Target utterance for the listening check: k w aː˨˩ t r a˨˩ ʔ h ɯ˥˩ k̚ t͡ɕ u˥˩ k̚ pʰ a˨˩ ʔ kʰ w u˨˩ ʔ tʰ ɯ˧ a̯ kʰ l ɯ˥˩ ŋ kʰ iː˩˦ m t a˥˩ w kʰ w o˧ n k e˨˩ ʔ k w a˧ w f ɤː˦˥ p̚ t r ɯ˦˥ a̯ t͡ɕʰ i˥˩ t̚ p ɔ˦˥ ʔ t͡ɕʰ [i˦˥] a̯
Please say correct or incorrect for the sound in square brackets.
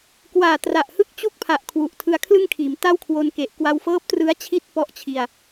incorrect